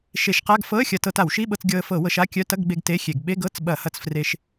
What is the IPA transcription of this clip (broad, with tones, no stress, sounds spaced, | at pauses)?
ʃ e˧˩˧ ʃ q a˧˥˧ ɡ f ɤ˧˥˧ ə̯ xʲ ɐ˧ t ɤ˧ t a˧˩˧ w ʃ i˧˥˧ ɓ ɤ˧ t͡s ɡʲ ɤ˧ ə̯ f ɤ˧˩˧ w ɤ˧ ʃ a˧˥˧ kʲ œ˧˥˧ t ɐ˧˥˧ ɡ ɡ͡b e˧ ɡ t e˧˥˧ xʲ e˧˩˧ ɡ ɓ e˧˥˧ ɡ ɤ˧˥˧ t͡s ɓ ɐ˧˩˧ h ɐ˧ t͡s f r e˧ ʃ